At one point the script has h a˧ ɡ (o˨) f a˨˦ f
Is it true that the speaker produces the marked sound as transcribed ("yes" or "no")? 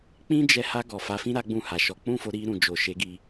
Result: no